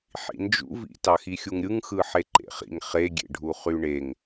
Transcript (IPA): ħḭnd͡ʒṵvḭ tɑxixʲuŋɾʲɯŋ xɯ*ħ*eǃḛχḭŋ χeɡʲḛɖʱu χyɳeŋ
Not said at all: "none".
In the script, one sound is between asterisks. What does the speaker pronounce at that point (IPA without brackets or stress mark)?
ħ